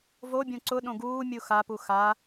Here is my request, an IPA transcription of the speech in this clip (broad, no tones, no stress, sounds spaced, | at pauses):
v o bʲ õ ǀ ʊ ɗ õ ɡ uː mʲ u x a p u x a